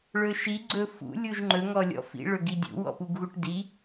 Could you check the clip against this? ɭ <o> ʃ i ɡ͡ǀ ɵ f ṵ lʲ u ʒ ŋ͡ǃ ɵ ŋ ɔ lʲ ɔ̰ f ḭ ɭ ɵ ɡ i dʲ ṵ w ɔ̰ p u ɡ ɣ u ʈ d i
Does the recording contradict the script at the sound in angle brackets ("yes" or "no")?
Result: yes